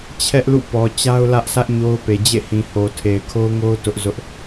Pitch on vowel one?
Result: high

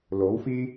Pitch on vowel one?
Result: rising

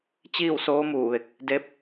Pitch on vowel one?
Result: falling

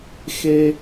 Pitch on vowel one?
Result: high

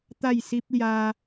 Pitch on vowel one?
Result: falling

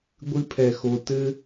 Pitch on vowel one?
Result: high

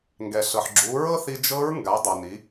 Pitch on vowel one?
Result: low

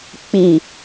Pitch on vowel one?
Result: low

